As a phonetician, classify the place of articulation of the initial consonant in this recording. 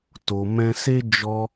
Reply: alveolar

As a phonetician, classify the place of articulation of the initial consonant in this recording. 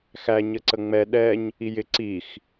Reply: velar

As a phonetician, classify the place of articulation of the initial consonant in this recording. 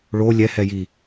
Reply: retroflex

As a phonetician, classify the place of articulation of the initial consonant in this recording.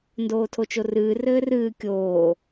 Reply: alveolar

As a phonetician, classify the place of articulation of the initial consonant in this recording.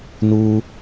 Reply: alveolar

